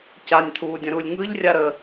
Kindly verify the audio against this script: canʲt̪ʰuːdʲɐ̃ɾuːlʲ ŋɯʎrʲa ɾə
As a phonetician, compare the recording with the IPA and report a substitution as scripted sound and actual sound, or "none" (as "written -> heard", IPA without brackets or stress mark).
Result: none